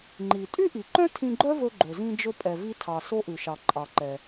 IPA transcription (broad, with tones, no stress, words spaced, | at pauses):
ŋ͡ǃi˩ tʼy˥ʔi˩ǃœ̃˥ tʰĩ˧ɡ͡ǃœ˥ vɵ˧ɡ͡ǃɵ˩zĩ˧d͡ʒɵ˧ pʼɛ˩vi˧tʰɑ˩ so˧ʔʉ˩ʃɑ˩ ǃʼɑ˩ǃɛ˩